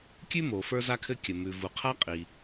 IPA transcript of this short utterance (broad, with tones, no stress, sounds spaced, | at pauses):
kʲ ʉ˥ m o˩ f ə˞˥ z a˥ kʰ ɘ˥ kʲ ə˩ m ʉ˩ v u˩ qʰ a˥ qʼ i˩